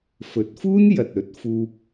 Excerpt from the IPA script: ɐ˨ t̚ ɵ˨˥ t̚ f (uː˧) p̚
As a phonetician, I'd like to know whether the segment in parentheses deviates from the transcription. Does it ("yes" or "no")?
no